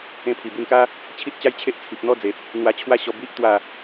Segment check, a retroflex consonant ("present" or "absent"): absent